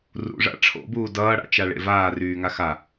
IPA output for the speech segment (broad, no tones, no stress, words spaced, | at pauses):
rṵʐa̰ ʈ͡ʂʰo̰buː dʌːɽa̰ t͡ʃaɭḛvaːryː ŋaxa